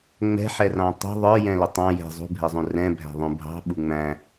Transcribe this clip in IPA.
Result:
ŋ͡mɛ̤ħɛrɑ̃ tˤṳ ðˤə˞jɛ̃lʊ tˤɑ̃ jɛ̤ zˤṳbʱɛzˤũ rɛ̃bʱæ̤ðˤũ bʱɑ̤ɓu ŋ͡mæ̃

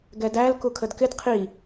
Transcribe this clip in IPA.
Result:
ɡɛdæl kukʰədkɪd qʰi

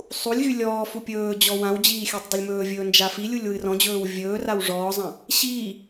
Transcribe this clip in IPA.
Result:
sˤulʲɣy lʲɔːfu pʲɵːd͡ʑɔ wãwd͡ʑiː xʲɜtˤdˤɵlʲmɵːvʲɵː nd͡ʒafilʲulʲ wɨrɔ̃d͡ʑɵːw vʲɵːraw ʐɔːzˤã | ɕiː

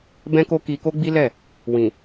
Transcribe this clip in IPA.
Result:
bɛ̃˦ko˦ ki˧ ko˦ɡ͡bi˦lɛ˦˨ | wĩ˨

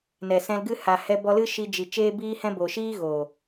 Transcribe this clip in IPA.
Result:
nɛ˨sɛ̃˧lɡɨ˦ ha˨ hɛ˧bɔ˧lɨ˦ ʃi˧d͡ʒi˨ t͡ʃeː˦biː˦hɛ̃˦ bo˨ʃiː˦ɣoː˨

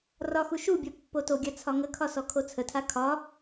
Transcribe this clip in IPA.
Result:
rɒxu ʃubʲɔ pːotoɡʲa t͡sʰɒŋəkʰɒ sɔkʰot͡sʰətʰa kʰɒ

